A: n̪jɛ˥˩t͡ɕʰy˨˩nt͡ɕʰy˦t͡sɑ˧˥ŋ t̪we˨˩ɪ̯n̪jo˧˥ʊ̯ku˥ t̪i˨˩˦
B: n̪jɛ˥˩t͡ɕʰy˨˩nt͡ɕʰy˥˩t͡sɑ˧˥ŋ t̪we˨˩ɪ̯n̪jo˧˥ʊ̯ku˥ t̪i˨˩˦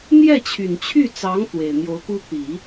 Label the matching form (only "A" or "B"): B